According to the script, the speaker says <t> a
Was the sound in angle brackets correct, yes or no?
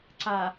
no